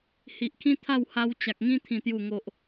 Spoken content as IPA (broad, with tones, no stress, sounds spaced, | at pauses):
h i˨ ʔ kʰ ĩ˦ t̪ʰ a˥˧ w h a˧ w t͡ɕ a˨ k̚ ŋ ĩ˦ t̪ʰ ĩ˨˩ t̪ j u˨˩ ŋ o˨ ʔ